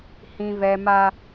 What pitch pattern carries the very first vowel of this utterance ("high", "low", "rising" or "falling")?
high